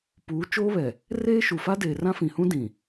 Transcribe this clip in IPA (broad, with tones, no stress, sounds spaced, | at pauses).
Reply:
p uː˨˦ t͡ʃ oː˦ β ɛ˨ | r eː˦ ʃ u˨ f a˦ d eː˨ r ã˦ f ĩ˨ h ũ˦ d ĩ˨